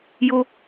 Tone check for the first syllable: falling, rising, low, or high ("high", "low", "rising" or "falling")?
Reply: high